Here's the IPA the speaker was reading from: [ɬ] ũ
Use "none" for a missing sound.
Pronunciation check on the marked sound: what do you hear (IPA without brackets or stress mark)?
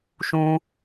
ʃ